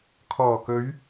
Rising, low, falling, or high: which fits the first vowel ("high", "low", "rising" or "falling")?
low